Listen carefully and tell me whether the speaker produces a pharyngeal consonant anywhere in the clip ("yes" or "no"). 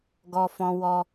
no